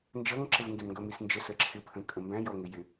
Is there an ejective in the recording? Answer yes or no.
yes